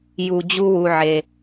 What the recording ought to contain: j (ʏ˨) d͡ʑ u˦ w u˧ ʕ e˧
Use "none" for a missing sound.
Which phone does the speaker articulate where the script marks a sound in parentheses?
u˨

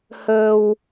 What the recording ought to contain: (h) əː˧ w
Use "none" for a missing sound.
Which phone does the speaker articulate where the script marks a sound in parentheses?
h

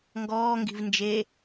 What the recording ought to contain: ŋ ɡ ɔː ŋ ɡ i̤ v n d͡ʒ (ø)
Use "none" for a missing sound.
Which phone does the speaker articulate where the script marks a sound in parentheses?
e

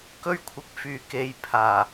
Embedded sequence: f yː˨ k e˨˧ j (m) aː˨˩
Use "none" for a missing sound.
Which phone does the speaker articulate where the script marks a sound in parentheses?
pʰ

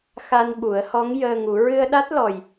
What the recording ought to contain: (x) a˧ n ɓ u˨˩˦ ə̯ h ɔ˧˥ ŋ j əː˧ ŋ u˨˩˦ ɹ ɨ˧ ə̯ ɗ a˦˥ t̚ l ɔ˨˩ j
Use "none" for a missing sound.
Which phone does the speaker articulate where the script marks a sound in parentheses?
x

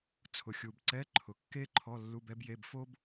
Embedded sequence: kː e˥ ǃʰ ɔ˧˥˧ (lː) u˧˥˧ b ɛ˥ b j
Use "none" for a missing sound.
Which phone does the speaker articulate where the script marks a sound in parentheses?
lː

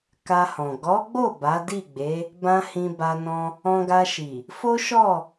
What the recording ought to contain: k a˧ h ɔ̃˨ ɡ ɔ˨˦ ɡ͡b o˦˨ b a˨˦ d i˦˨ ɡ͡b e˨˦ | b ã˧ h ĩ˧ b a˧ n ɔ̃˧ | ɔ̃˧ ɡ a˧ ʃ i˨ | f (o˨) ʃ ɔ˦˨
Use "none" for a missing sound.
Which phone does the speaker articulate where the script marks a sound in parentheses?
o˦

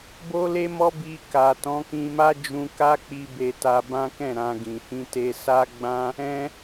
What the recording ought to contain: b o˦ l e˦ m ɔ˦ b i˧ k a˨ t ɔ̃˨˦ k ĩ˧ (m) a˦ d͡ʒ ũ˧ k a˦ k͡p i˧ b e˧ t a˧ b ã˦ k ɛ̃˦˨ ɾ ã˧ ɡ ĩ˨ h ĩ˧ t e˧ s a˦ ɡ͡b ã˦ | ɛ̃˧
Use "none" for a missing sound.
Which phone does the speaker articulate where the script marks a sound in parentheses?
m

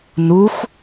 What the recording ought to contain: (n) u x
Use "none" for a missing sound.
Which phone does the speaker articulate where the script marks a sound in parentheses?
n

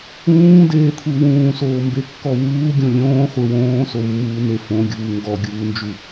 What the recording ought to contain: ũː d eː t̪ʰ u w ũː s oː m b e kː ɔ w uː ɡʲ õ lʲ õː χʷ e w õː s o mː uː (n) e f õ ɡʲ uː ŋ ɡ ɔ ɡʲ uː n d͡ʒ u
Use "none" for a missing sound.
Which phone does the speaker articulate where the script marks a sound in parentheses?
n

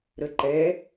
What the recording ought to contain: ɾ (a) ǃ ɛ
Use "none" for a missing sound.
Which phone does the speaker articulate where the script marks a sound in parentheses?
ə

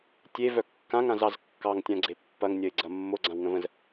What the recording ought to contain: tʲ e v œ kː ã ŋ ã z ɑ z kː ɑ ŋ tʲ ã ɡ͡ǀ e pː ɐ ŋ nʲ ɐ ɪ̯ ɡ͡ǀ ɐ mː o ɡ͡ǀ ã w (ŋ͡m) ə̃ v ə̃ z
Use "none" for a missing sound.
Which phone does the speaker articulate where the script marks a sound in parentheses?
ŋ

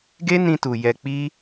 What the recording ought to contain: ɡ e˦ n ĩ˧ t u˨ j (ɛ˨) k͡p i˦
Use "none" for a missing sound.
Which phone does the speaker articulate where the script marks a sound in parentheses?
ɛ˧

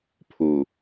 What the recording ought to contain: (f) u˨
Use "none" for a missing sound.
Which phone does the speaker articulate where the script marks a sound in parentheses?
pʰ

